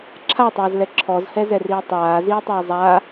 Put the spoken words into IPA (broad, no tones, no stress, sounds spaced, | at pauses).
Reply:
ǁʰ a tˤ aː z l ɛ ǁʰ ɔ z h ɛ z ɛ r iː tˤ aː z iː tˤ iː zˤ a